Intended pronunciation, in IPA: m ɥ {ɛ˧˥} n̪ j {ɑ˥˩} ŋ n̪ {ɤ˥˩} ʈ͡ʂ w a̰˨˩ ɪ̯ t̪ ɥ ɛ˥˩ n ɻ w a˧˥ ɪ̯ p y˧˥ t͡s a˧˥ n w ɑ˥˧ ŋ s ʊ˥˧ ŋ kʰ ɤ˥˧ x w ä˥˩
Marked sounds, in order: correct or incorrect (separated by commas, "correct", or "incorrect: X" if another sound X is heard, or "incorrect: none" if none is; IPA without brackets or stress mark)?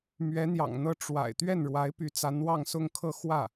correct, incorrect: ɑ̰˨˩, correct